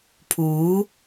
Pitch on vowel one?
rising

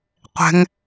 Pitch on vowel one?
high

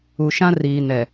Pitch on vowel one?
low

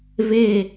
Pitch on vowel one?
falling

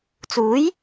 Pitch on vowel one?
rising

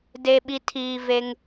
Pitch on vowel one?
low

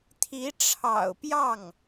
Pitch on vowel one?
rising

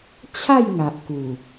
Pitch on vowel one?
falling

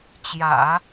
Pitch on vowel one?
low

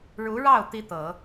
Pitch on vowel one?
rising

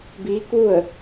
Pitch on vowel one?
rising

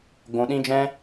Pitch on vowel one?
low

